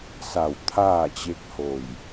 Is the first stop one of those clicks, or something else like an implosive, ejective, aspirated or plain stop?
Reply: aspirated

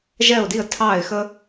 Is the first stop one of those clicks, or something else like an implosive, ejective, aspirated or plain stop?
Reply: plain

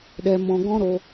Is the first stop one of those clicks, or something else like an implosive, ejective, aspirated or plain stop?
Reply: implosive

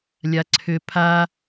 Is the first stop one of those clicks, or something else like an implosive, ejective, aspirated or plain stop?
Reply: click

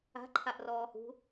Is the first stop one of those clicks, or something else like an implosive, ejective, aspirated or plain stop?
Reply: click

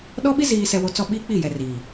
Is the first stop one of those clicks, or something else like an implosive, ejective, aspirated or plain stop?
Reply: implosive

